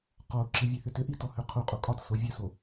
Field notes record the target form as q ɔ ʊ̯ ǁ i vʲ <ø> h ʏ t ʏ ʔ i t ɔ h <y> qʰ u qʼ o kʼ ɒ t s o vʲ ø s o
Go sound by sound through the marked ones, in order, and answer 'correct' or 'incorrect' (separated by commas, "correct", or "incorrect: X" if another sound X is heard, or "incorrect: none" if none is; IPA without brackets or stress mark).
incorrect: ʉ, incorrect: ø